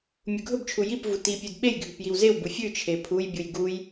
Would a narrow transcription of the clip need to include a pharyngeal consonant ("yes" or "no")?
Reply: no